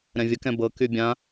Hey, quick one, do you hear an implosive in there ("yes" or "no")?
no